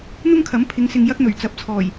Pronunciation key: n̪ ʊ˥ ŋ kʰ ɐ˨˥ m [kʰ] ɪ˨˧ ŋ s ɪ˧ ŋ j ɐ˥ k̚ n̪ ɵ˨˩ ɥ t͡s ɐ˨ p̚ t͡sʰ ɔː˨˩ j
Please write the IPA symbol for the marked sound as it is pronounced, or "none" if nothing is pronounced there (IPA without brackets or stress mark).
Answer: pʰ